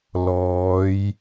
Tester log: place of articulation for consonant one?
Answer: alveolar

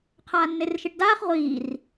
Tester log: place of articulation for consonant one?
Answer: uvular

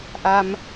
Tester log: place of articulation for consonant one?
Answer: glottal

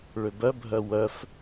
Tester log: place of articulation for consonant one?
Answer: retroflex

